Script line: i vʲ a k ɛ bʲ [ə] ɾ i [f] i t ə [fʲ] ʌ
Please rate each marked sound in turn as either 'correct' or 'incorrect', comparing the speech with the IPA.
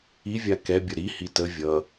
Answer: correct, incorrect: h, incorrect: vʲ

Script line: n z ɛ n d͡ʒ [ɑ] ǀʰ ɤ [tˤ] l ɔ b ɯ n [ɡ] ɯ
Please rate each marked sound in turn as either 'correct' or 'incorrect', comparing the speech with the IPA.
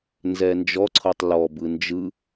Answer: incorrect: ɔ, correct, incorrect: d͡ʒ

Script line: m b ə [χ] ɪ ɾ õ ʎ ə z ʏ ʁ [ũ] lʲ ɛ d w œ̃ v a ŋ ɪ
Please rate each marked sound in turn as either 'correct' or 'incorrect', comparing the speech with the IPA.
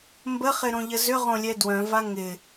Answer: correct, incorrect: õ

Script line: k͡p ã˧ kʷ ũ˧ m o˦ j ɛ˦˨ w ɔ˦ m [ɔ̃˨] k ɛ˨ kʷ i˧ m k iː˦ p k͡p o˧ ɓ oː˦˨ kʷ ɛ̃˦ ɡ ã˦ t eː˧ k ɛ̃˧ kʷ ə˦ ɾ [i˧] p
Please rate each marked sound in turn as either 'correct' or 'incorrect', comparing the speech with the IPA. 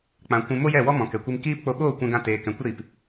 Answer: correct, correct

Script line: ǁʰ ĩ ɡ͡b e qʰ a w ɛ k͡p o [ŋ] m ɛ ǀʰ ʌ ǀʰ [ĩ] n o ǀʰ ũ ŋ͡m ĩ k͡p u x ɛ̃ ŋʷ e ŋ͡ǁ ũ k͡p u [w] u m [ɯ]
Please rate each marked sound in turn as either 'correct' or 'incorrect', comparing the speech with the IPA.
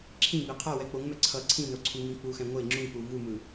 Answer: correct, correct, incorrect: v, correct

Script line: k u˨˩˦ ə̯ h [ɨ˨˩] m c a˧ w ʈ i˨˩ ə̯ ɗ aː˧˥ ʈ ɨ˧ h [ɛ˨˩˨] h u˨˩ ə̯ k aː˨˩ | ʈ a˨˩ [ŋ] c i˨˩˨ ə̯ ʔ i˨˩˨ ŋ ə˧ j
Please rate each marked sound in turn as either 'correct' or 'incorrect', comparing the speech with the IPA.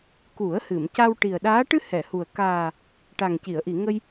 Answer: incorrect: ɨ˨˩˨, correct, correct

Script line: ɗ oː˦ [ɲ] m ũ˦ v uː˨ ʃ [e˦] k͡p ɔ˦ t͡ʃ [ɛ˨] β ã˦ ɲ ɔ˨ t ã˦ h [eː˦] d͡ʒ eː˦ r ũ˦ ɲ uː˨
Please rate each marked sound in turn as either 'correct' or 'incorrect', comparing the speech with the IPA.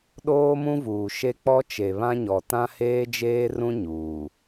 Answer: incorrect: none, correct, incorrect: e˨, correct

